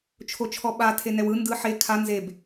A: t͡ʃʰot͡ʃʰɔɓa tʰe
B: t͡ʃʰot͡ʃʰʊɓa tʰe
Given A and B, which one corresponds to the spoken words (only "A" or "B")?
A